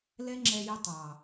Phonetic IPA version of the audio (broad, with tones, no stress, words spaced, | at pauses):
lɛ˦ŋ͡ǁɛ˧jə˧ tˤɑ˨